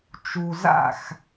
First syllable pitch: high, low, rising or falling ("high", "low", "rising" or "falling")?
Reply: low